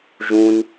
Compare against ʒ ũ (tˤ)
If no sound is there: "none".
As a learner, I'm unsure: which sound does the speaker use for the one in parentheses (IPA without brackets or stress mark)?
n